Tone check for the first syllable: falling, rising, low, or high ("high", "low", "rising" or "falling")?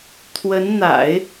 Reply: rising